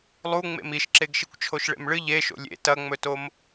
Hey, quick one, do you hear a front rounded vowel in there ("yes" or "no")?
no